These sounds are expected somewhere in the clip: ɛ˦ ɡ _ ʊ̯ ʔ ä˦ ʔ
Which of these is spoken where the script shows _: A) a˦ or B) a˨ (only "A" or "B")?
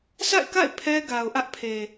B